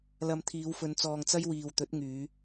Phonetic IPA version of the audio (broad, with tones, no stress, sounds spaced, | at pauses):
l ɐ˨ m t̪ʰ iː˨˧ w f ɵ˨˧ n t͡s ɔː˨ ŋ t͡s ɐ˥ j w iː˨ w t̪ ɵ˨˥ t̚ ŋ yː˨˧